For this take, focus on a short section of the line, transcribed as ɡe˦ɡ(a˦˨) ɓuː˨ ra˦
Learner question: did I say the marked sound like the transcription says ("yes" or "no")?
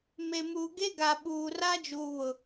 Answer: no